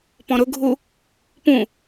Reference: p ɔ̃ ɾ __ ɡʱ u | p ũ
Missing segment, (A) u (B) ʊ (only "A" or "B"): B